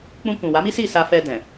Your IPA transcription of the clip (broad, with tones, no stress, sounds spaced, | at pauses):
k͡p ũ˧ k ũ˨ w a˨˦ m i˦ s i˦˨ s a˧ f ɛ˧ d ɛ̃˨